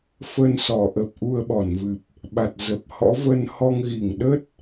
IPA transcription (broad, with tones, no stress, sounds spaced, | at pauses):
f ə˧ n s ɔ˨˩ ʔ ə˨˩ p̚ ʔ u˧ ə̯ ɓ ɔ˧˩ n v ɨ˨˩ p̚ | ɓ a˨˩ t̚ z ə˨˩ p̚ h ɔ̰˧˥ v ə˧ n h ɔ˧ ŋ ɣ i˧˩ ŋ ɗ ə˦˥ t̚